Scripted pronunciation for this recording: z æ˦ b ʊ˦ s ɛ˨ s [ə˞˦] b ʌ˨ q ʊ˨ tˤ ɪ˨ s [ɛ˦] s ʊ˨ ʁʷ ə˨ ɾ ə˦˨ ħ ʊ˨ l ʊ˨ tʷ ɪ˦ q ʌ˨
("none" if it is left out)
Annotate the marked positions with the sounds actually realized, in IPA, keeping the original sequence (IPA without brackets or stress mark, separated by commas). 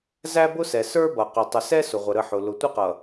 ə˞˦, ɛ˦